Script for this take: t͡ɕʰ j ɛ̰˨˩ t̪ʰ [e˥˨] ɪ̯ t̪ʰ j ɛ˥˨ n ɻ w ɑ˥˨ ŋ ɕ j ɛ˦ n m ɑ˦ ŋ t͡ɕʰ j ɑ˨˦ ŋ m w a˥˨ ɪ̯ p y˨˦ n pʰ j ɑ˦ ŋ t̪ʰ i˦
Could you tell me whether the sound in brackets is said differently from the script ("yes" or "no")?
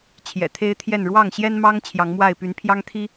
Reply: yes